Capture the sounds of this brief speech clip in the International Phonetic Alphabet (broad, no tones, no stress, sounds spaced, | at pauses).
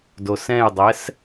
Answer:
d o s ɛ̃ j dˤ ɛ s